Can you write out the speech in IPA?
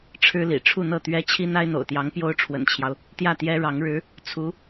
ʈ͡ʂʰ ɻ̩˥ l ḭ˨˩ ʈ͡ʂʰ u˥˧ n̪ ɤ˥˩ t̪ ɥ ɛ˥ t͡ɕʰ i˥ n̪ a˥ ɪ̯ n̪ o̰˨˩ ʊ̯ t̪ j ɑ˧˥ ŋ p j o˥ ʊ̯ ʈ͡ʂʰ w ə̰˨˩ n t͡ɕʰ j ɑ˦ ʊ̯ | t̪ j ä˥˩ t̪ j ɛ˥ ɻ ɑ˧˥ ŋ ɻ ɻ̩˧˥ | t͡sʰ u˧˥

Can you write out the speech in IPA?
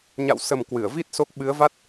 ɲ a̰˧˨ w s ə˨˩ m k w ɨ˧˩ ə̯ v i˦˥ t̚ s o˦˥ k̚ ɓ ɨ˨˦ ə̯ v a˦˥ t̚

